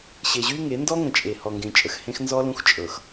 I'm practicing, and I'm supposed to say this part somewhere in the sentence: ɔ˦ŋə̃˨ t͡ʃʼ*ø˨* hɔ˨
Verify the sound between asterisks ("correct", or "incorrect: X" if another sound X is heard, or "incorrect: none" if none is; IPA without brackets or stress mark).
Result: incorrect: e˨